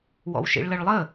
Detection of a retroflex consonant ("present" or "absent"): present